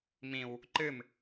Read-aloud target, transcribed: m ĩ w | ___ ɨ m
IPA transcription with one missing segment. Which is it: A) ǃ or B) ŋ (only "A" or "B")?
A